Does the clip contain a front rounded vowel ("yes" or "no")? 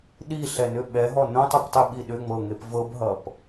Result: yes